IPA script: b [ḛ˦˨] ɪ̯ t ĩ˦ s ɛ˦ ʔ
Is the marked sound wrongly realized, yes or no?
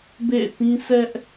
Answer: no